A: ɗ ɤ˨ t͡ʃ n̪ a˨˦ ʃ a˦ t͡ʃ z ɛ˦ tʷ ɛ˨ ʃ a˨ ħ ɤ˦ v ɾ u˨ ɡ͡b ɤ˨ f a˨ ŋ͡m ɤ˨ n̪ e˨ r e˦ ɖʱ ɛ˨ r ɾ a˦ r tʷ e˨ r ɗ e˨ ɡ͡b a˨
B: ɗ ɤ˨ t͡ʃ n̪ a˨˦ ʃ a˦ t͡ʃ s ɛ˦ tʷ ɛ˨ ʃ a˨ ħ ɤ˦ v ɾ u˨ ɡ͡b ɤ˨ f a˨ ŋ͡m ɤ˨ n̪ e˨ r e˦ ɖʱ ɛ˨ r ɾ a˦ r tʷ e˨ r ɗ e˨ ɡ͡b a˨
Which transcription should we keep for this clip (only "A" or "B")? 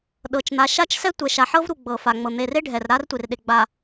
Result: B